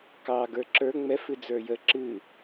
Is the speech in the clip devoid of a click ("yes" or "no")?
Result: no